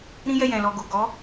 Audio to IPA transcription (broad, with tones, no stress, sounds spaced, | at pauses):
ɾ ĩ˦ j ɛ˦˨ j ɛ̃˨ l ɔ˨ ɡ o˨ ɡ ɔ˨˦